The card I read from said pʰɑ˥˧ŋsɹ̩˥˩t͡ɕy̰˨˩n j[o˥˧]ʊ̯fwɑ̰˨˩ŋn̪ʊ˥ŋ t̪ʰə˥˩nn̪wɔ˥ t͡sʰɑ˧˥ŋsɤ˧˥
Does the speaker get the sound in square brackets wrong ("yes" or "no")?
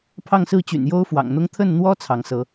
yes